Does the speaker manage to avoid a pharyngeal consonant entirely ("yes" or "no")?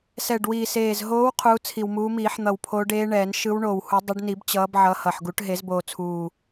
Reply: no